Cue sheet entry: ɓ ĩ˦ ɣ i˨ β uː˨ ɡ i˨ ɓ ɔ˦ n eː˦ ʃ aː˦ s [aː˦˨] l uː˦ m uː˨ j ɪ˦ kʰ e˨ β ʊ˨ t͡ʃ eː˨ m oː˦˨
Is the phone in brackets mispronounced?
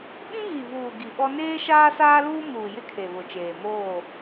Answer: yes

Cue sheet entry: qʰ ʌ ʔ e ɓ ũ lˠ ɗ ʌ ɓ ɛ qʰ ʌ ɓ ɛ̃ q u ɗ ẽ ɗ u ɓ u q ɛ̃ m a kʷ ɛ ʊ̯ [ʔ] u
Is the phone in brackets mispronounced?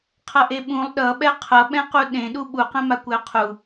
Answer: yes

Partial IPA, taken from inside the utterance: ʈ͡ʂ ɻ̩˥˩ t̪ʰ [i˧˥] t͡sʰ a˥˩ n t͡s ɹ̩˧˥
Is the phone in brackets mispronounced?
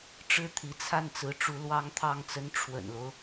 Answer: no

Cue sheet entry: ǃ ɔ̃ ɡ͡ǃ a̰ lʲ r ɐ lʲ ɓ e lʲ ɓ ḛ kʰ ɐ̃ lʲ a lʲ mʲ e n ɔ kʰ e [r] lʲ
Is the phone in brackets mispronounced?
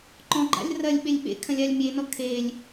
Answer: yes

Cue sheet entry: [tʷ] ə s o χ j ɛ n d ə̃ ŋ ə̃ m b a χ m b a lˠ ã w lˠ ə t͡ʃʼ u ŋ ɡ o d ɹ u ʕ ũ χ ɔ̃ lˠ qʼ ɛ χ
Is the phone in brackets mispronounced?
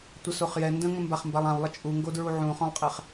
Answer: no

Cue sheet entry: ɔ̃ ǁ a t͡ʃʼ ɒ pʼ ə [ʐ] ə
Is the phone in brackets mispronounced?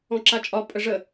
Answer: no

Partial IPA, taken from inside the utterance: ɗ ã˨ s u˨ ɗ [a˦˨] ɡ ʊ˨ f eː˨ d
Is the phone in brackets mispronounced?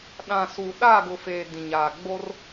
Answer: no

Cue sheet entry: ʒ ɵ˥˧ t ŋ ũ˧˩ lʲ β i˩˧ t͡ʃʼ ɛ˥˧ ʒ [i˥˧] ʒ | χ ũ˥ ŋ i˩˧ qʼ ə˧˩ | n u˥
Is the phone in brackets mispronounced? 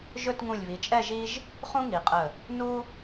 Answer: yes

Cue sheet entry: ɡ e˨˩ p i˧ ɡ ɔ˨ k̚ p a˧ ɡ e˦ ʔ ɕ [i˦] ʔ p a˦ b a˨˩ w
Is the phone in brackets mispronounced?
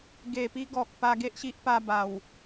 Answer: no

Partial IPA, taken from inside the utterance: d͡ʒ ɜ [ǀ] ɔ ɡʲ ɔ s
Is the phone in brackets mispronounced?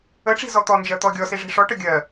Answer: yes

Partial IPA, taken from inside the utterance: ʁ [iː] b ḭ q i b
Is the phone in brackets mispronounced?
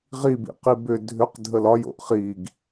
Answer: yes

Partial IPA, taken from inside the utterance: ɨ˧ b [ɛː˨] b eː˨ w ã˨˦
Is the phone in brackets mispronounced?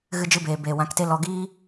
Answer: yes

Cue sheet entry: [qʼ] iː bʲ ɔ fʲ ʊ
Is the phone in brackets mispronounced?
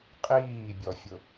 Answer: no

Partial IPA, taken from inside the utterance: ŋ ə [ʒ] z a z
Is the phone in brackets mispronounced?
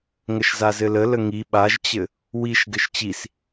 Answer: yes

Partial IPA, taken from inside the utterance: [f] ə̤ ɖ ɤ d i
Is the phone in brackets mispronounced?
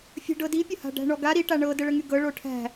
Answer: yes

